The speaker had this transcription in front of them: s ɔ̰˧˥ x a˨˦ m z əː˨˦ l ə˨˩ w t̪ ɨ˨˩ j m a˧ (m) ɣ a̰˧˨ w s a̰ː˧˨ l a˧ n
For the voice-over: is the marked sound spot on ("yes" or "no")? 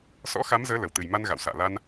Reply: no